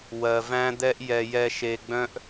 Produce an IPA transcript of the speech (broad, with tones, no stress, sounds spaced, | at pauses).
w ɜ˨ v æ̃˦ d̪ ɛ˦ ʔ j ɛ˨ j ɛ˨ ʃ e˨ ɡ͡b œ̃˦ ʔ